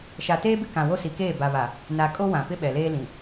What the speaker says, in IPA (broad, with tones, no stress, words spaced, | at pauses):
ʃa˨teː˦bɪ˦ kã˨wo˦ si˨keː˦˨ba˨βa˨ | na˨ kʼo˦wã˨pɪ˦ ɓɛ˨leː˦lĩ˨